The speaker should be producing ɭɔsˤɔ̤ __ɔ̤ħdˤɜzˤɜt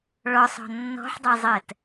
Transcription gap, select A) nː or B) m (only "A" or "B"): A